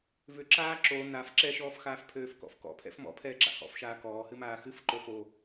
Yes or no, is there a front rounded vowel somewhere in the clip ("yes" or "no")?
yes